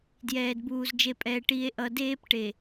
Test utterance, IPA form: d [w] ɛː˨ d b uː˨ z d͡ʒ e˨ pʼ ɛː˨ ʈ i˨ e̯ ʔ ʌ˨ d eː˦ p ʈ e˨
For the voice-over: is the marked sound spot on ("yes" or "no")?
no